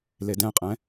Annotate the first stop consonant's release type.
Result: plain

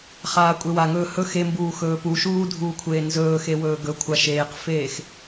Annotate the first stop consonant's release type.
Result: ejective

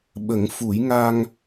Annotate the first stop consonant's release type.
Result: implosive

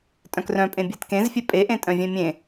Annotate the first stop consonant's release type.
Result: ejective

